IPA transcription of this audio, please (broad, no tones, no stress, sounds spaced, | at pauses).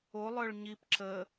o lˠ œ ɭ ɲ i p ǁ ə